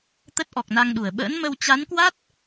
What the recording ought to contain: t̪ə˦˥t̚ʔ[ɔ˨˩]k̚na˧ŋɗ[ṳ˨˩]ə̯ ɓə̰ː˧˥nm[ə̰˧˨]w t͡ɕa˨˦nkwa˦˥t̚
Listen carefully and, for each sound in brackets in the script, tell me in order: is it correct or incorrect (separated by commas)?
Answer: correct, incorrect, incorrect